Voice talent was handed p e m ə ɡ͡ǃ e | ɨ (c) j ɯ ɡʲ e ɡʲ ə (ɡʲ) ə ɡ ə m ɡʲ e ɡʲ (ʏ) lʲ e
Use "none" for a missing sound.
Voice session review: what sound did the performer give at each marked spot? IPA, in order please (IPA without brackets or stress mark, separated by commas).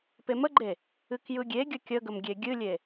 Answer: k, kʲ, ɨ